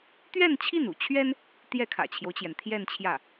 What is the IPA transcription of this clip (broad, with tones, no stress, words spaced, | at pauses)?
t̪ɥɛ˥˧n t͡ɕʰi˥˩nṵ˨˩t͡ɕʰɥɛ˥n | t̪jɛ˥˩kʰä̰˨˩t͡ɕʰjo˦ʊ̯t͡ɕjɛ˩n t̪ʰjɛ˥˧nt͡ɕʰjä˥˩